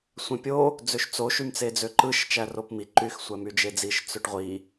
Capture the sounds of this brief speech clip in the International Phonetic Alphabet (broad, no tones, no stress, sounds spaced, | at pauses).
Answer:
sʷ ẽ pʲ o | d͡z ø ʃ t͡s o ʃ y m t͡s e d͡z ø ǃ ɯ ʃ t͡ʃ æ r o p m i ǃ y x sʷ æ m y d͡ʒ e d͡z i ʃ t͡s ø ʈ ʁʷ i